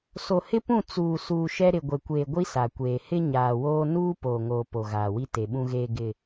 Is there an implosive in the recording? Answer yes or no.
yes